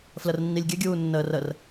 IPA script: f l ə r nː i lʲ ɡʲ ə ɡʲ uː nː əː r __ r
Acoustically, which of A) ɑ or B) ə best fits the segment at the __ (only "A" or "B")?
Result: B